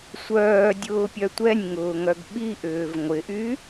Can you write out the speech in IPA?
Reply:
sʷœːdʲʊːpʲœ tʷɛnʲŋʊːŋœɡ ɓiʔʏːv ŋʷɪʔy

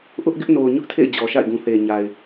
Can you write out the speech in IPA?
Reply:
ʔʊ˦ʔɡɪ˦ʔno˨ʊ̯ ɲʊ˦ʔtʰḛ˦˨ɪ̯ d͡ʑɔ˨ʃa̰˦˨ɪ̯ɡũ˨ θe˨ɲa˨ɪ̯

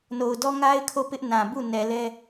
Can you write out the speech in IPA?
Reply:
no˨ʊ̯dɔ˦ŋa˦ɪ̯ kʰo˦˨pɪ˦ʔnã˨bu˦˨ nɛ˨lɛ˦

